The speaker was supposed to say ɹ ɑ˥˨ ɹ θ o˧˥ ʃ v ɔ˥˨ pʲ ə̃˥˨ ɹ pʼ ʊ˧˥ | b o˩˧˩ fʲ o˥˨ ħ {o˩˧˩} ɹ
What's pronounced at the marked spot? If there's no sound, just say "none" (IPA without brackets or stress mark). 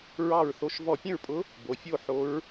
o˧˥